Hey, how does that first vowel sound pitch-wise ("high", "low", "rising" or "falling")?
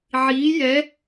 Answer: rising